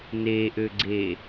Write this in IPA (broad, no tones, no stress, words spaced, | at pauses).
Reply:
neʔøɡ͡ǀe